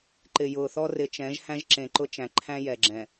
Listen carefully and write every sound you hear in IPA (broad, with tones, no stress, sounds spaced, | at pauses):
ǃ ɪ˨ j ʊː˨ θ ɔ˦ r ɪ˨ t͡ʃ ɛ̃˨˦ ʒ h æ̃˦ ʒ ǁ ẽ˨ ǃ ʊ˦ t͡ʃ æ̃˨ ǃʰ æ̃˦ j ɛ˨ ɡ͡ǁ ɛ̃˨